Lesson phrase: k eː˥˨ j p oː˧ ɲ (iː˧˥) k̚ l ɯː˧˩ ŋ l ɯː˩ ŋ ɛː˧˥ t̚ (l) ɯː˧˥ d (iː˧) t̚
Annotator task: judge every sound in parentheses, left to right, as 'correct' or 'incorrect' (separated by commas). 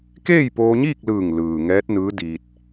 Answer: incorrect, incorrect, correct